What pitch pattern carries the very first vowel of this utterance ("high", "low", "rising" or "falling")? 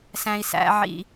low